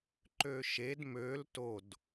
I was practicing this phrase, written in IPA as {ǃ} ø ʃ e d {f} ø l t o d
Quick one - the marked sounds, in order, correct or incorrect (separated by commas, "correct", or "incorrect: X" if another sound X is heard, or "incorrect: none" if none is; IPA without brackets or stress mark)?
correct, incorrect: m